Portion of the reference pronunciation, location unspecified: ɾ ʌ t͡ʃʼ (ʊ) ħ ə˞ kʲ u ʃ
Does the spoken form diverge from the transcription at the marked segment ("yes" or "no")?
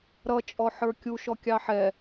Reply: yes